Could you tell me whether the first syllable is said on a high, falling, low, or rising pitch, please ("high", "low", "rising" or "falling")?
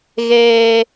low